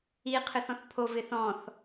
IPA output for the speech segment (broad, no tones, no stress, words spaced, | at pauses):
i qʰɨθɔ̃θpʰo vɪθɔ̃θ